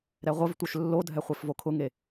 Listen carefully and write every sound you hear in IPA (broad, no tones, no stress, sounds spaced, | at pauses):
ɾ ɛ ʁʷ ə v tʷ œ ʃ lː o dʱ ɛ χʷ e f v o kʰ ʊ ŋ e